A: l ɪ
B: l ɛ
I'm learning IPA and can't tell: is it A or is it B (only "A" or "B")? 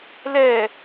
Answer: B